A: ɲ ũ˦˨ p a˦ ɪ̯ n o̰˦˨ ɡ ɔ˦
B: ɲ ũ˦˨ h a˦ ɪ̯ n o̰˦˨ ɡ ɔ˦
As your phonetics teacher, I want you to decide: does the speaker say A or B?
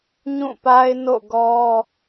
A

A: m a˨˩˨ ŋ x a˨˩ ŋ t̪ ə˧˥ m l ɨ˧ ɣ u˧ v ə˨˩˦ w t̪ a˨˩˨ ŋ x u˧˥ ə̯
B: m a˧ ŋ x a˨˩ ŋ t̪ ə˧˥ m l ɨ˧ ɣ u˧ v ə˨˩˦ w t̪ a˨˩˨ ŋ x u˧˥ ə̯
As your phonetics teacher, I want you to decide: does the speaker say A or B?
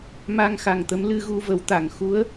B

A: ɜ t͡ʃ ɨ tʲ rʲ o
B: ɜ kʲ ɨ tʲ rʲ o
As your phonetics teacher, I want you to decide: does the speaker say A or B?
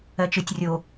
A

